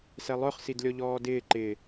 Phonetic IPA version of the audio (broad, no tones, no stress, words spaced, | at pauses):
sɛlˠœχ sidlʲɔʎɔːdɪː ǃɪ